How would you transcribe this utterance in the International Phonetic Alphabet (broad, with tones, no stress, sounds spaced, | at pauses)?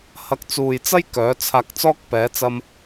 h ɐ˨˥ k̚ t͡s uː˨ j t͡s ɐ˥ j k œː˨˥ t͡sʰ aː˧ k̚ t͡s ɔː˥ k̚ p ɛː˨˥ t͡s ɐ˥ m